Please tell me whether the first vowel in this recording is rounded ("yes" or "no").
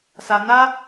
no